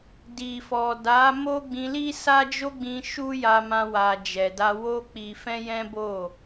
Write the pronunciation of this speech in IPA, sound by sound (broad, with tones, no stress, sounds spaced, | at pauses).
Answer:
d i˨ f ɔ˨ d a˨˦ m o˦ ɡ͡b ĩ˧ l i˦ s a˦ d͡ʒ o˦ ɡ͡b ĩ˧ ʃ u˦ j a˧ m ã˧ w a˨ d͡ʒ ɛ˨ d a˧ w o˦ k͡p i˧ f ɛ̃˦ j ɛ̃˦ b o˦˨